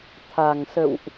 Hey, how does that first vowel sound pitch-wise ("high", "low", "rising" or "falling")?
low